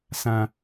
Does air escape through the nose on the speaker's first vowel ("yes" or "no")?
yes